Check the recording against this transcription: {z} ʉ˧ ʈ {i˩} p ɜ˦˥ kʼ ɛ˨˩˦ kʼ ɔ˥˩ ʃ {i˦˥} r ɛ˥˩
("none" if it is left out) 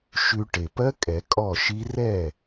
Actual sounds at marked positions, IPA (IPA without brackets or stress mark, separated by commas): ʃ, e˩, i˦˥